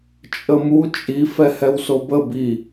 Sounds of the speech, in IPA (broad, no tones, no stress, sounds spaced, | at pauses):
t͡ʃʼ ə m u t͡ʃʼ i f ɛ h ɛ w s o b ə b i